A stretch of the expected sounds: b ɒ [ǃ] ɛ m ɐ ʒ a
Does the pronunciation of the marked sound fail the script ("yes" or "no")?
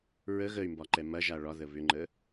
no